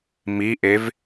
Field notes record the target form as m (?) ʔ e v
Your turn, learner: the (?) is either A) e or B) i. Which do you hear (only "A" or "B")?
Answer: B